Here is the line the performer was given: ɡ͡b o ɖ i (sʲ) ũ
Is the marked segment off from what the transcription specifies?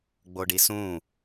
yes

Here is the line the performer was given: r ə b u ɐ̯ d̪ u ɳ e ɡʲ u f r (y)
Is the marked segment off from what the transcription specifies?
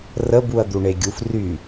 no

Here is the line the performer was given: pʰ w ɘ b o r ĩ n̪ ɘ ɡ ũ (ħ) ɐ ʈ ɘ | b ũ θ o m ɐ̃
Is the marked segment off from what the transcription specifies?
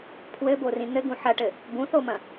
no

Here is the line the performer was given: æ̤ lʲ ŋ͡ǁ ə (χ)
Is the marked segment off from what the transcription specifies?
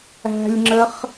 no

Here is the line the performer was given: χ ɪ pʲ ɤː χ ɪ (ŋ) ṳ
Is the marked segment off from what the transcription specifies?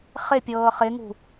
no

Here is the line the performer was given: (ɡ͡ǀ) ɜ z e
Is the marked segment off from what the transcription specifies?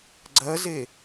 no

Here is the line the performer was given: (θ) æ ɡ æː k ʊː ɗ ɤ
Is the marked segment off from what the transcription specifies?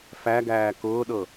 yes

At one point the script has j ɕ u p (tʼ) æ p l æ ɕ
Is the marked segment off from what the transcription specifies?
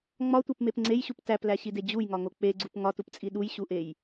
yes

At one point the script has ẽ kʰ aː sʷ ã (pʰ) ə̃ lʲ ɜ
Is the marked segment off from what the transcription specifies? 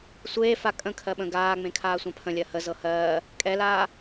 no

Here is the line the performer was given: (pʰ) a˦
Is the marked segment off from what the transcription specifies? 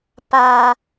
yes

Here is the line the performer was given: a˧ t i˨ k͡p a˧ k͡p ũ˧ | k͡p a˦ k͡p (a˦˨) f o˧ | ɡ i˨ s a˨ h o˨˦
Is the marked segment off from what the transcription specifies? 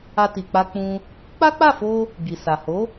no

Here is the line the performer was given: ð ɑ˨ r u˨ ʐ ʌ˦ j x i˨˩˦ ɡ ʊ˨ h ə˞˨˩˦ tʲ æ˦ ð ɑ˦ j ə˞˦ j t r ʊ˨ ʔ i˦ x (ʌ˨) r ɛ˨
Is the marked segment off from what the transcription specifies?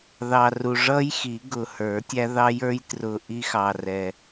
yes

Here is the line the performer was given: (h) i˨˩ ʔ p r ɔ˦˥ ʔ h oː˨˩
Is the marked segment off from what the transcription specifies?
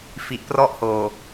yes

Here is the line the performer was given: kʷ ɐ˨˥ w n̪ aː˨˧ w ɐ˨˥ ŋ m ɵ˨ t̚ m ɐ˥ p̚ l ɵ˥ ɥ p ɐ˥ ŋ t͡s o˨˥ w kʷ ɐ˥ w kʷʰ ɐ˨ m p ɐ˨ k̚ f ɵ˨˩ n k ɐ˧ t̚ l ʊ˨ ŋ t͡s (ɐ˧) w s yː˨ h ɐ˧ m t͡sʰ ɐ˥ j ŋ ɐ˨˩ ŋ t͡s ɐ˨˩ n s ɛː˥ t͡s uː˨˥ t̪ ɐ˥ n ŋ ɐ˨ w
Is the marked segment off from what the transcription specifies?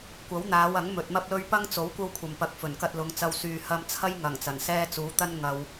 no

